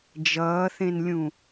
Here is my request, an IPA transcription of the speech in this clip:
d͡ʒʌːθẽnlʲũ

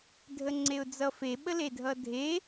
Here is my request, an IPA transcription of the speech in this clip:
dʱəŋ͡ǀeʊ̯d͡zʌfe ɓəledʱʌdʱe

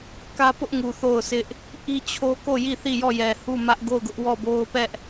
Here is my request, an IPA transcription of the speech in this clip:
kä˦pʊ˦ʔŋu˨ θo˦˨ʊ̯sɪ˦ʔ | ʔi˦t͡ɕʰo˦ko˦˨ji˦˨ θi˦˨jɔ˦˨jɛ˨ hu˦˨mä˦ʔɡo˦˨ʊ̯ ɡʊ˦ʔwɔ˦˨bo˦ʊ̯ pɛ˦ʔ

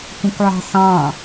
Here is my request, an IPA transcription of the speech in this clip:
kʷə̃kʷʕɑ̤ħɑ̃

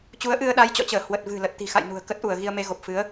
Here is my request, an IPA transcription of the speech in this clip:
t͡ɕu˨˦ə̯ ʔɨ˧ə̯ɗa˨˦jt͡ɕɔ̰˧˨ t͡ɕəː˧˩ hwə˨˩t̚ vɨ̤˨˩lə˨˩t̚t̪i̤˨˩xa̰˧˨j nṳ˨˩ə̯kə˦˥t̚ʔu˧˩ə̯ ɣi˧ə̯me˧ɣo˨˩p̚fɨ˨˦ə̯

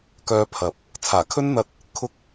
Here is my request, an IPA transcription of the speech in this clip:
kœː˧pʰɐ˨p̚ | t͡sʰaː˨˩kʰɵ˥nn̪ɐ˧t̚ | kʰʊ˥k̚

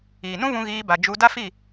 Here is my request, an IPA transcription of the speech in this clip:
iː˨nũ˦vũ˧ ɣiː˧ba˨ d͡ʒu˧ da˦fi˦˨

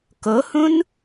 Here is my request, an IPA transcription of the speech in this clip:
kohũn

